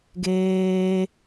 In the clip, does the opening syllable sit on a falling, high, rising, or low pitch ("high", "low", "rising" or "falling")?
high